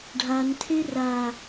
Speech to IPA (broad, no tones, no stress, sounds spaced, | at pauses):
ɖʱ a n tʰ e r a